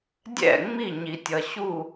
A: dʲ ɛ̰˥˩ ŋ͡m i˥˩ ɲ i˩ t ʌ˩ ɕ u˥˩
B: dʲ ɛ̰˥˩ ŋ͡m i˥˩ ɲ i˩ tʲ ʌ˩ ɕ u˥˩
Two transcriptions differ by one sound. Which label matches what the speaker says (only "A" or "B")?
B